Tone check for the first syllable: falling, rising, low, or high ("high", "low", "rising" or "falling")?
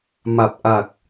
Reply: low